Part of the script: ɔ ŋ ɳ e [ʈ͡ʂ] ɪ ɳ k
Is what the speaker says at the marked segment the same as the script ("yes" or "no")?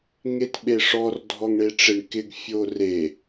yes